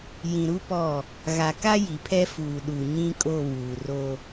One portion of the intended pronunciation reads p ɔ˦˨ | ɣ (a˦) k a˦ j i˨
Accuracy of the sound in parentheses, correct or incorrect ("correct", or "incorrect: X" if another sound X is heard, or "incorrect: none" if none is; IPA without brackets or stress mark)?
incorrect: a˨